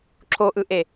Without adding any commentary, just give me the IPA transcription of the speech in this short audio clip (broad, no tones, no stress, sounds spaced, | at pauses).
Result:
ǁʰ o ʔ ɯ ʔ e